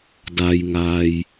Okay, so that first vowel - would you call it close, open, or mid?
open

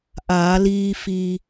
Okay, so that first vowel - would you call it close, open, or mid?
open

